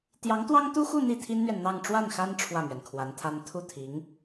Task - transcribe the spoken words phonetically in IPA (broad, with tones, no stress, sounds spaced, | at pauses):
t̪ j ɑ˧˥ ŋ t̪ w ɑ˥ ŋ t̪ u˥ x u˥˧ n̪ i˥˩ t̪ʰ i˥ n n̪ ɥ ɛ˨ n n̪ ɑ˥˧ ŋ ʈ͡ʂ w a˥˩ n x a˥ n ʈ͡ʂʰ w ä˥˩ m ɥ ɛ˩ n kʰ w a˧˥ n t̪ʰ a˥ n t̪ʰ u˥˩ t̪ʰ i˧˥ ŋ